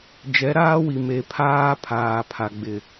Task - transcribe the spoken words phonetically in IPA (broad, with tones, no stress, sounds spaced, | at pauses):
d͡ʒ ɛ˨˦ ɾ aː˦ w i˨ m e˨ pʰ aː˦ pʰ aː˨ pʰ a˨ ɡ͡b ɪ˨